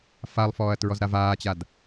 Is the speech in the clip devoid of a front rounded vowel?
yes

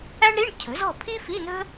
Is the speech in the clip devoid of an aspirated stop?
no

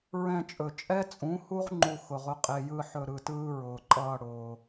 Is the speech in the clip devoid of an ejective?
no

